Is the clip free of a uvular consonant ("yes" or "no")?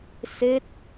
yes